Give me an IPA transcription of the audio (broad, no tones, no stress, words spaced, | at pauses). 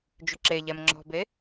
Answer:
d͡ʒʏǁeʎɛm ŋ͡ǁɔ̤be